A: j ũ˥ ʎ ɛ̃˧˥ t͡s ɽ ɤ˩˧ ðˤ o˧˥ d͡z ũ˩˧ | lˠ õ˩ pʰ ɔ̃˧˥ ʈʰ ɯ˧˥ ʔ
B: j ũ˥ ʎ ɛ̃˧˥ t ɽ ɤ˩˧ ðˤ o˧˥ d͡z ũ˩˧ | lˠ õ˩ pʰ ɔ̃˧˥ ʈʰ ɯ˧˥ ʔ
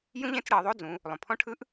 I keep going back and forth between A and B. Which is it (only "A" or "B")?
A